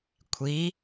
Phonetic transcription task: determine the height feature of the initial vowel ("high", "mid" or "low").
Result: high